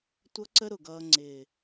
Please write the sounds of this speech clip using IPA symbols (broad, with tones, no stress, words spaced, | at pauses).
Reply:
tʷʌ˦ǀə˦ ɾʊ˨ɡʌː˧ ŋ͡ǀɪː˨